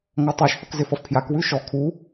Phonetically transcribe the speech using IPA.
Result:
ŋɔtˤaʃθʌk zɪfʌfpʰjakwʉ ʃɔ kʰu

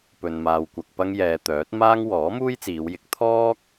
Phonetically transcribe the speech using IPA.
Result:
pɵ˧nmaː˧wkʷɐ˧k̚ pɐ˥ŋjɛː˧ t̪œː˨˥t̚maː˥ŋ wɔː˨˥muː˥jt͡siː˨˧wjɪ˨˥k̚ t̪ʰɔː˥k̚

